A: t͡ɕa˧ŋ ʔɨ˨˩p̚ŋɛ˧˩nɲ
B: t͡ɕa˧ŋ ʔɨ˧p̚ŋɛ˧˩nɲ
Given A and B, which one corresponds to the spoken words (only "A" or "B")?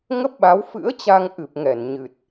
A